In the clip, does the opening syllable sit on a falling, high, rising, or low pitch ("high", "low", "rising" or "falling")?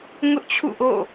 high